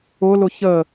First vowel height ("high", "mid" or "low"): high